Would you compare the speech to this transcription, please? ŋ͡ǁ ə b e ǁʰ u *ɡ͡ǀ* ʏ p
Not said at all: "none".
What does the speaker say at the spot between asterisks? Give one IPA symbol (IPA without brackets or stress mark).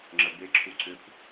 ǀ